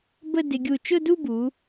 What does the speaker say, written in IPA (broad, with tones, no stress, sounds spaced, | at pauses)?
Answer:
b ə˥˧ d ɪ˧ ɡʲ u˧˩ t͡ʃ ʊ˥˧ d u˥˧ b u˩˧